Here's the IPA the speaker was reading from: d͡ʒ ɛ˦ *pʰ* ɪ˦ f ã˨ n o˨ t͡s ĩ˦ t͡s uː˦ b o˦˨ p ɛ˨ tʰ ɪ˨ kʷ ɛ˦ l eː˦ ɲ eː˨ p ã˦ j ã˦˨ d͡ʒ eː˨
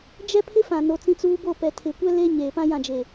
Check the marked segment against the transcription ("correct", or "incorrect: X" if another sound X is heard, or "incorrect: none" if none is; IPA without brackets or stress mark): correct